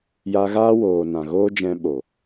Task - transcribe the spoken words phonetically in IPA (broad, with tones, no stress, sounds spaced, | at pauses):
j a˧ ɣ aː˦ w oː˨ n ã˨ ɣ oː˦ d͡ʒ ɛ̃˧ ɓ o˨